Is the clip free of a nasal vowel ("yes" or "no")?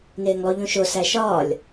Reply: no